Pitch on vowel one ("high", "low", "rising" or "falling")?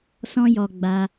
high